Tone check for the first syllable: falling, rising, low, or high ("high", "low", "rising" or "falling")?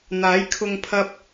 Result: rising